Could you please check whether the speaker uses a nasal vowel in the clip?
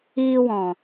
yes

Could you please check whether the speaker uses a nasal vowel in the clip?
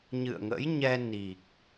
no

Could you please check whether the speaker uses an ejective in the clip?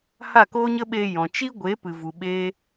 no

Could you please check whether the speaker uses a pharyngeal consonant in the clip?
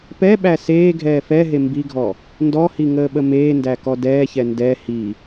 no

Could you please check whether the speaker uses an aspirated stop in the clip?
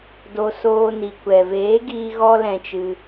no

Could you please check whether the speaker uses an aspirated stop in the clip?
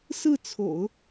yes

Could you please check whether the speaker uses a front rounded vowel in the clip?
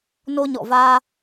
no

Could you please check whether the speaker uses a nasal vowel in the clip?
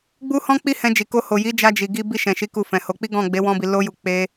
yes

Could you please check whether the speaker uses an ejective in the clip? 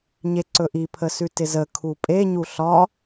yes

